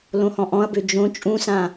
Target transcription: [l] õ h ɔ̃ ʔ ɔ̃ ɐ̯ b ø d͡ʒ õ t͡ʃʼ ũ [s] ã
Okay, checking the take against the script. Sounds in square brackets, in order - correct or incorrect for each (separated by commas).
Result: correct, correct